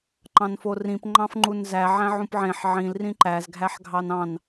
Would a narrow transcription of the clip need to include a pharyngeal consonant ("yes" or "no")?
yes